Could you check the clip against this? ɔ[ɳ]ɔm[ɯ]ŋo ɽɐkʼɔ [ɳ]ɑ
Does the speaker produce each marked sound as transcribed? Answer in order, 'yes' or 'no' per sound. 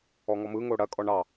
no, yes, yes

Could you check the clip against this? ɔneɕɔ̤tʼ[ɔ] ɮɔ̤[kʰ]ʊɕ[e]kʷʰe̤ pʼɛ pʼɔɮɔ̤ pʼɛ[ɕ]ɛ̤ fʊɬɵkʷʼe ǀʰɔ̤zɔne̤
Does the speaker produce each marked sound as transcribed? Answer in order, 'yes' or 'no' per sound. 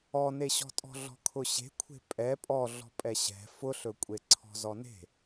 no, yes, no, yes

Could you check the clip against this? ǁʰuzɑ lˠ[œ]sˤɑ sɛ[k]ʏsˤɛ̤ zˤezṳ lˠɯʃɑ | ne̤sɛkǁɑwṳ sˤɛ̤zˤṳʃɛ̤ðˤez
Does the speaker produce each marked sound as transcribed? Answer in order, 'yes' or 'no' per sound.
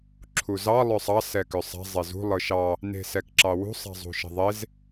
yes, yes

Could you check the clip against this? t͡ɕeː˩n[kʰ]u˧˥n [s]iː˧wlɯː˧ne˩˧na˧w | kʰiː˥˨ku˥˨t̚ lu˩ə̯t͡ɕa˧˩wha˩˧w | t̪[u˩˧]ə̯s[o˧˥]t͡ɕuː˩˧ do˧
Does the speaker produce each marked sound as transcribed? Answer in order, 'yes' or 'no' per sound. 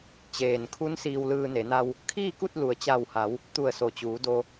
yes, yes, no, no

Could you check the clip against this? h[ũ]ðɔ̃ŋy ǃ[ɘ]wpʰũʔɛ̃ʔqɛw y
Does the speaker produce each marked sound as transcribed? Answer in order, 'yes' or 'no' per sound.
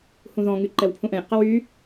yes, no

